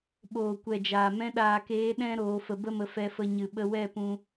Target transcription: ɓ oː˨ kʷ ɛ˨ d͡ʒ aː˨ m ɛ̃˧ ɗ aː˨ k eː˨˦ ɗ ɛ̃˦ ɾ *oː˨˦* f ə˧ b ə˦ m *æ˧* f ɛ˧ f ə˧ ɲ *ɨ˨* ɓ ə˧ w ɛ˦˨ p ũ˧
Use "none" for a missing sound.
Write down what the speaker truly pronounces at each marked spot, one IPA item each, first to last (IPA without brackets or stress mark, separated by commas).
oː˨˦, ə˧, ɨ˨